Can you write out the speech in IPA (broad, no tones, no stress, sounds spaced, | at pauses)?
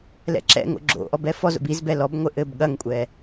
l ɛ̰ ǁ ɛ̰ ŋ o̰ ɡ͡ǁ o̰ ʔ ɔ b ɛ f ɔ z o̰ b i z b ɛ l ɔ b ŋʷ ɘ ʔ ɘ b ɠ ɐ ŋ kʷʼ ɛ